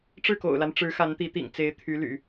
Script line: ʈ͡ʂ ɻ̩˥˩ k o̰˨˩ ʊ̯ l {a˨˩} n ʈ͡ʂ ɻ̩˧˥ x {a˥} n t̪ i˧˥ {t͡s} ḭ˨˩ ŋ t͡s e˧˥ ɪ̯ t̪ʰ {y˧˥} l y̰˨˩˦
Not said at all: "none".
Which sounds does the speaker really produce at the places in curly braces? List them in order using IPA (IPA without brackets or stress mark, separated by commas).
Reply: a˦, a˧˥, t̪, y˧˥